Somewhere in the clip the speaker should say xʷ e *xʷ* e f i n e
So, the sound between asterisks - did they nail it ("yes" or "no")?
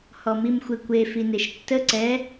no